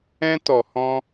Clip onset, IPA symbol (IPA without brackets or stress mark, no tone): ɛ̃